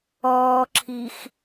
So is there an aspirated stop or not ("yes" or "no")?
yes